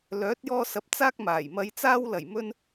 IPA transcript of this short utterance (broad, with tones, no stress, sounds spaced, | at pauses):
l œː˨˥ t̚ j ɔː˧ s ɐ˨˥ p̚ t͡s aː˥ k̚ m aː˨˩ j m ɐ˧ j t͡s aː˥ w l ɐ˨˩ j m ɵ˧ n